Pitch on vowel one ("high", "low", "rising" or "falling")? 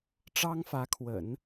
high